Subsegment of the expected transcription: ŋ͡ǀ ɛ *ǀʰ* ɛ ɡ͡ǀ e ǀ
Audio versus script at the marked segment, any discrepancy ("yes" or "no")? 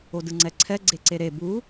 no